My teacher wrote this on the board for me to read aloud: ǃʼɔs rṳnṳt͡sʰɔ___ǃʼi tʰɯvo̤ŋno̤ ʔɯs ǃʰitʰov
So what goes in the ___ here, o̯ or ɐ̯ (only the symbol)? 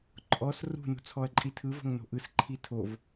ɐ̯